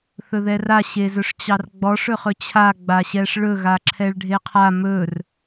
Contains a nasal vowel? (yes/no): no